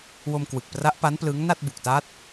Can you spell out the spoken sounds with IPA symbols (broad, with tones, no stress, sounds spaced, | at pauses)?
w o˧ m k w ɯ˨˩ k̚ p r a˦˥ ʔ p a˦˥ n p l ɯ˦˥ ŋ n a˥˩ t̚ b u˨˩ k̚ t a˦˥ t̚